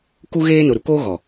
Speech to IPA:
k u˦ ɣ eː˦ n ʊ˨ ɾ u˨ k oː˦ ɣ ɔ˨

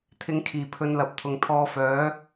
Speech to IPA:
t̪ʰ ɪ˨˧ ŋ kʰ iː˨˩ pʰ ɵ˧ n l ɐ˨˥ p̚ t̪ʰ ʊ˨˩ ŋ t̪ʰ ɔː˧ f œː˨˥

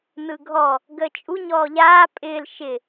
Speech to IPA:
n ɯ ɡʱ ɔ | ɡ əː t͡ʃʼ u ɲ ɔː ʎ aː pʼ ɪː l ʃ ɪ

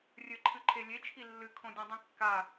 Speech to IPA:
rʲ ɘ ǃʰ ɨ ǃʰ e lʲ e t͡ʃʰ i lː ɨ kʰ õ dʲ ɛ̃ dˤ ĩ kː a

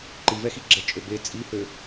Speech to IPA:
ǃ i v ɛ x i ɡ͡ǁ ɛ t͡ʃʼ ø b e t͡sʼ i h ø

